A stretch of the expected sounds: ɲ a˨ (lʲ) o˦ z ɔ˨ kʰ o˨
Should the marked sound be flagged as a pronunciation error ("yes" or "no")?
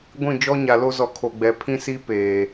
yes